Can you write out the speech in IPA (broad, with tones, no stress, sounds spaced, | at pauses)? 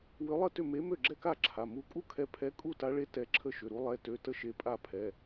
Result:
w ʏ˨˥ lˠ ə˥˩ t ʏ˥˩ m e˨˥ m ø˥˩ ɡ͡ǁ ɛ˥˩ k a˥˩ ǁʰ a˩˧˩ m u˨˥ kʼ u˥˩ kʰ ɛ˨˥ pʰ ɛ˨˥ kʼ u˥˩ t a˨˥ ɭ e˨˥ t ɛ˨˥ ǁʰ ə˥˩ ʃ ʏ˩˧˩ ɾ u˨˥ lˠ ɛ˩˧˩ t ø˩˧˩ t ə˨˥ ʃ e˩˧˩ pʼ a˥˩ pʰ ɛ˩˧˩